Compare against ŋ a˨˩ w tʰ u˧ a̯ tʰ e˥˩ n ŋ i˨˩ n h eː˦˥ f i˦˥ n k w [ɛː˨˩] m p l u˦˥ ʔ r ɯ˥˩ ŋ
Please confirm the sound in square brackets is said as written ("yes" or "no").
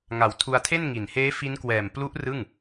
yes